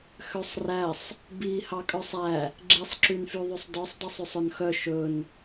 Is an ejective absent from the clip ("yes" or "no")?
no